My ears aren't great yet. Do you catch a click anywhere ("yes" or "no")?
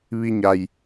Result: no